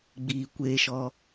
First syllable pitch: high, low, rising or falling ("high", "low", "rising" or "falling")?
low